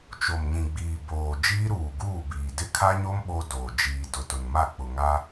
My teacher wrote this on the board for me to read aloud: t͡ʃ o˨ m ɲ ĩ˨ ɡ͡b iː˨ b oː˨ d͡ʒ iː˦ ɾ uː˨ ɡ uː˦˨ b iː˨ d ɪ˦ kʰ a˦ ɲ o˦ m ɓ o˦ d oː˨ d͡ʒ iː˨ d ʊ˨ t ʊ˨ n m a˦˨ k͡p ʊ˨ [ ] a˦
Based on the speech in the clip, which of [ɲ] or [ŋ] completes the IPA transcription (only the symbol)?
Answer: ŋ